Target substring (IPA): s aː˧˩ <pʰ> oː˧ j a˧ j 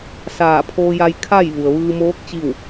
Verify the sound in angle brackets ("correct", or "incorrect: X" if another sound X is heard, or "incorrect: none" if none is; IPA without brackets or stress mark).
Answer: correct